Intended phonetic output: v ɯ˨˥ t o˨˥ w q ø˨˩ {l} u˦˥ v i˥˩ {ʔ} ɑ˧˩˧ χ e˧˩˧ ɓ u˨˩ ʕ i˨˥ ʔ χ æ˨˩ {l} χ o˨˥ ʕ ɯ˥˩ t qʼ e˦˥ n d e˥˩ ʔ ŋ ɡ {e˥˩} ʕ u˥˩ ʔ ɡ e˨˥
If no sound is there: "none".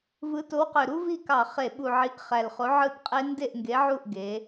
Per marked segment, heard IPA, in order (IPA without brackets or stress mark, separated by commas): ɾ, k, l, e˨˥